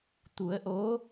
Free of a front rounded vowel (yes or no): yes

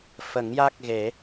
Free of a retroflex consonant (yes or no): yes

